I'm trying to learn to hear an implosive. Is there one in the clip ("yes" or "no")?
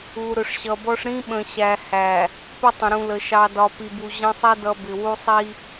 yes